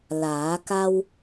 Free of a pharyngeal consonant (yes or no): yes